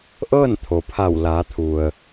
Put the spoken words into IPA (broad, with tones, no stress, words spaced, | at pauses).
ʔɤː˥˨nt̪ʰo˩pʰa˧˩w laː˩˧t̪ʰu˩ə̯